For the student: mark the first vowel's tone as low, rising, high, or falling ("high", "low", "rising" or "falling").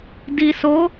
low